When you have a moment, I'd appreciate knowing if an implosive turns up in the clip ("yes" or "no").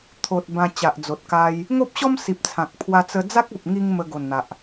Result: no